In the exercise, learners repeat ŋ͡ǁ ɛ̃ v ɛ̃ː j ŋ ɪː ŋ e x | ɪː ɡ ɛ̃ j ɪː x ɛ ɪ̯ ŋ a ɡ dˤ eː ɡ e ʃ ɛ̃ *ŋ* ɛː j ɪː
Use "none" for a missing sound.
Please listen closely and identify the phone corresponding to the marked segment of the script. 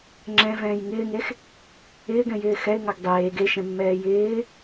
mː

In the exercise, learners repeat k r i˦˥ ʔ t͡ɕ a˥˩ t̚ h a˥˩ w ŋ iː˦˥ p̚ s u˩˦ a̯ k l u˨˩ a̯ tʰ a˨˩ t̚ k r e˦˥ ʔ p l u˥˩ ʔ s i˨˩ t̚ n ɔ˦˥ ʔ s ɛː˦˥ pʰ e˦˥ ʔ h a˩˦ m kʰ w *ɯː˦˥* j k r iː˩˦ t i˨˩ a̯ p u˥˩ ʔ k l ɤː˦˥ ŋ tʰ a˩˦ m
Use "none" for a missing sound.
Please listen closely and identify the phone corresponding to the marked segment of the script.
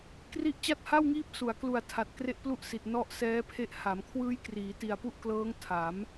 ɯː˦˥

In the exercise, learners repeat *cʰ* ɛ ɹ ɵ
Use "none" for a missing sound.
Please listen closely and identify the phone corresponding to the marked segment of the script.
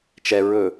t͡ʃ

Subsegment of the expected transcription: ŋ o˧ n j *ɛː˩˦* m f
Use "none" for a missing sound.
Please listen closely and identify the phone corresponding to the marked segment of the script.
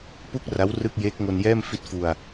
ɛː˥˩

